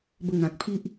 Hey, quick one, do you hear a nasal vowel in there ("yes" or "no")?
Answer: yes